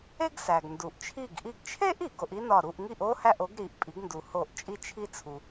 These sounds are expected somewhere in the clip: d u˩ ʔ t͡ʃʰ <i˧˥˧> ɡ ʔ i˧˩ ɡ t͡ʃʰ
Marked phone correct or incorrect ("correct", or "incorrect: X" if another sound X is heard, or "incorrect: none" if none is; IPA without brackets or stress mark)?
incorrect: i˧˩